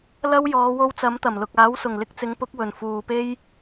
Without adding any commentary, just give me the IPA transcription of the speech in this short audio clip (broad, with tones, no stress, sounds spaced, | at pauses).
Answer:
l ɐ˥ w j ɔː˨˧ w o˧ w t͡s ɐ˨˥ m t̪ ɐ˨˩ m l ʊ˨ k̚ aː˨˥ w s ʊ˨˩ ŋ l ɪ˧ k̚ t͡s ɪ˨˥ ŋ p ʊ˨˥ k̚ w ɵ˨˩ n f uː˨ p e˥ j